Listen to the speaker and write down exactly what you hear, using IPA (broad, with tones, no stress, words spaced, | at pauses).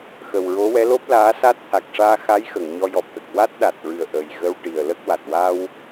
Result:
xə˨˩wɹo˧˥wɛ˧˥ lo˦˥p̚laː˧˥ sa˦˥t̚t̪ʰa˨˩k̚ʂaː˧ xa˧˥jxə˨˩˨ŋ ɲɔ˧jɔ˨˩p̚t̪ə˨˩k̚ wa˦˥t̚ɗa˨˩t̚ɹɨ˨˩ə̯ ʔə˨˩j ɣə˧wʈi˨˩ə̯lə˦˥k̚ wa˨˩t̚ wa˧w